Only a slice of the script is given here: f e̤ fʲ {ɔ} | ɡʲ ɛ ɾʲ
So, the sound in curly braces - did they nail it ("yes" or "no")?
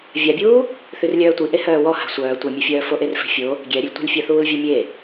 no